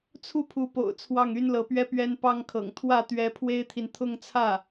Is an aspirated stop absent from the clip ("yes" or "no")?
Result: no